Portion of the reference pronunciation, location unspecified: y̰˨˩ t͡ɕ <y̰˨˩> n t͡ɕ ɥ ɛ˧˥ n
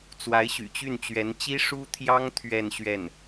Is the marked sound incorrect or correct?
incorrect